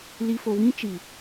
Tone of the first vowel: low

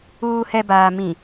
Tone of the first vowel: low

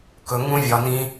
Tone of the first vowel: low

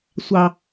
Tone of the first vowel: low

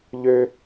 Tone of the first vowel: high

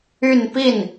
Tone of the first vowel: falling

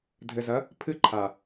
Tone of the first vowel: low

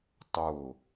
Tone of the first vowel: falling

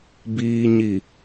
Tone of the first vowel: low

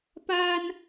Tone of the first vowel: high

